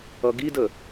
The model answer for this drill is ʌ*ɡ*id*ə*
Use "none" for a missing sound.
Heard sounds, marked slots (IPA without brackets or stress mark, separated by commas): ɡ, ə